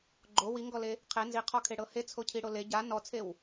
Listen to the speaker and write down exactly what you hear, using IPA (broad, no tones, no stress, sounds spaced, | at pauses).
ɡ͡ǃ o w i ŋ ɡ ɔ l e | qʰ e n z i qʰ ɔ kʰ e ɽ ɤ h e t͡sʰ o cʰ i ɽ o l e ɟ a n ɔ t͡sʰ e w